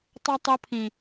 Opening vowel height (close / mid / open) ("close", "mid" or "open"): mid